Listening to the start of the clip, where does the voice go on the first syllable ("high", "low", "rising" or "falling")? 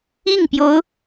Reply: falling